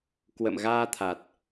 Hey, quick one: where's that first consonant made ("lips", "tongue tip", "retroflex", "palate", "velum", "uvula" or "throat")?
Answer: velum